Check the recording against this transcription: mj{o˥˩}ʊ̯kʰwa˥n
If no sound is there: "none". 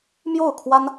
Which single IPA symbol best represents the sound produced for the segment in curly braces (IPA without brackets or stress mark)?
o˥˩